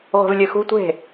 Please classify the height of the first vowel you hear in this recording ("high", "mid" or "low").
mid